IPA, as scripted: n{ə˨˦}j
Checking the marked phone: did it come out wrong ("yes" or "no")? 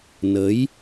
no